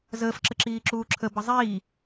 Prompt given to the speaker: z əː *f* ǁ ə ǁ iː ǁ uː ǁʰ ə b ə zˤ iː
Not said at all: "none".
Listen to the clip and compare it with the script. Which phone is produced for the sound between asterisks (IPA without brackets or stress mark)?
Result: f